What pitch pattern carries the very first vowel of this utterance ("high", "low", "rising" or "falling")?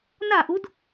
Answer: falling